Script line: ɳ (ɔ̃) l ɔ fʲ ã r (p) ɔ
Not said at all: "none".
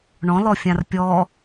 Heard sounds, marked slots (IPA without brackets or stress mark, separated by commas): ɔ̃, pʲ